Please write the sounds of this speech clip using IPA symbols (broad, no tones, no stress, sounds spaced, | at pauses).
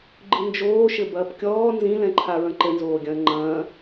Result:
ɡ͡ǃ ɨ n d͡ʒ oː ʃ ɘ b ɐː p kʲ ɔː n z ĩ l ɛ̃ ǃʰ a ɹ ɐ̃ ǃ ɘ n z oː ɡʲ ɐ̃ː ŋ͡ǃ ɐ̃ː